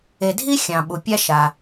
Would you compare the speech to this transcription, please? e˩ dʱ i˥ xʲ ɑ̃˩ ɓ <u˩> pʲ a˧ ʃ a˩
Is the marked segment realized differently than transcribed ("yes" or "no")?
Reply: no